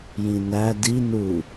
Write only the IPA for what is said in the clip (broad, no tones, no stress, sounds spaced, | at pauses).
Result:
j ĩ n æ d i n u